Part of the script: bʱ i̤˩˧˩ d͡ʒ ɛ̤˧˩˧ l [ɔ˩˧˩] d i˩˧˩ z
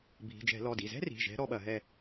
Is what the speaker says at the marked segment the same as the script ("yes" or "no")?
yes